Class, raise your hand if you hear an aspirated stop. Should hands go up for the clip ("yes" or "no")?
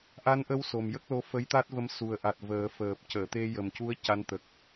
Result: no